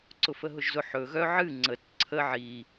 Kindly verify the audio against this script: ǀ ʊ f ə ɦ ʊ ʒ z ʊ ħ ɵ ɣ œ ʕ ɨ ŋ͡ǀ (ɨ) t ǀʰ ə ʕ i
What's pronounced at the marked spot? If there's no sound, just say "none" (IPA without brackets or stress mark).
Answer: ə